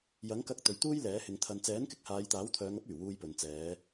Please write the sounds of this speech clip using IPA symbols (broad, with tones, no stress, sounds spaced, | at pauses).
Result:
j ɐ˨˥ ŋ k ɐ˧ k̚ t̪ ɵ˨ ɥ t̪ uː˥ j l ɛː˨˥ h ɪ˨˧ ŋ t̪ʰ ɐ˨ n t͡s ɛː˨˥ n k ɪ˧ k̚ h aː˨˧ j t̪ aː˨˥ w t̪ʰ œː˨˧ ŋ ɐ˥ p̚ yː˨˩ w uː˧ j p ɵ˨ n t͡s ɛː˨˧